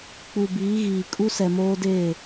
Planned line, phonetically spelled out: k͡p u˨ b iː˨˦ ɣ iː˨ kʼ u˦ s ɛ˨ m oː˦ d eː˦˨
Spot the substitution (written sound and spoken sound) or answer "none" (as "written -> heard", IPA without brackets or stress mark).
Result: none